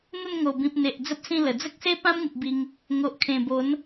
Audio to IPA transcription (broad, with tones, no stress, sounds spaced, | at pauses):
n̪ ə˥˧ n ŋ o˨˩ b ĩ˨ p̚ n̪ e˨ ʔ d͡z ə˦ p̚ s ĩ˥˧ l ə˨˩ d͡z ə˦ k̚ s e˦ p ã˦ m ŋ u˨ p̚ b i˧ ŋ | ŋ o˨ ʔ kʰ ẽ˨˩ b o˨˦ n